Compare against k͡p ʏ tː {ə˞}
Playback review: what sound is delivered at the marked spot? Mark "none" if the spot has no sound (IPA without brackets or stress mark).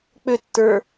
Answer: ə˞